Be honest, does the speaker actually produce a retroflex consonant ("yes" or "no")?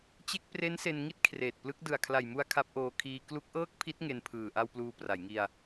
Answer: no